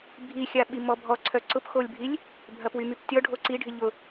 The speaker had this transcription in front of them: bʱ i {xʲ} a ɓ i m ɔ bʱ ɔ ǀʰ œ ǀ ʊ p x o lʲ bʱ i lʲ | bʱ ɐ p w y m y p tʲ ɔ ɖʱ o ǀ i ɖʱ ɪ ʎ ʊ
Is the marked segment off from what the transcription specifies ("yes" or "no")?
no